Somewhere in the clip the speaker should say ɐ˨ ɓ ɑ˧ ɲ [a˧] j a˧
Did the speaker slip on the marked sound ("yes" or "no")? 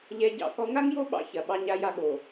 no